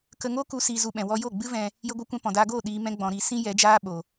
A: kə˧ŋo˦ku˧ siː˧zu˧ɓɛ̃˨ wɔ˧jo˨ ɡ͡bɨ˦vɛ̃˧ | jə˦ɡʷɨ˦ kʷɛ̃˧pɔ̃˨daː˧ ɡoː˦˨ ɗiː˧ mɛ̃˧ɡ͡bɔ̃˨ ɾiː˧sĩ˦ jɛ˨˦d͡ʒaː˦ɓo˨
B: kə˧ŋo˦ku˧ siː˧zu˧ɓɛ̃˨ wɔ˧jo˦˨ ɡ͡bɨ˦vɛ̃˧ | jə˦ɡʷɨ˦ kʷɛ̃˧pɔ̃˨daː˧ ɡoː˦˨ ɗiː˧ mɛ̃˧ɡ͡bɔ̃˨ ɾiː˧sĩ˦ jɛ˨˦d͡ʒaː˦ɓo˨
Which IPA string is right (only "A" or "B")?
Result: B